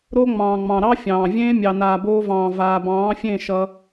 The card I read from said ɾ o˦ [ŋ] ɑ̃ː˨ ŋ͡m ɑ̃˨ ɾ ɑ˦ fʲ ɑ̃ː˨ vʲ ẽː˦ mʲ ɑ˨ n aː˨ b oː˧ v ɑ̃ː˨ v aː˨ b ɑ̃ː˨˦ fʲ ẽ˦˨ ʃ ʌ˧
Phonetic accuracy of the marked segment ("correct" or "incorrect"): incorrect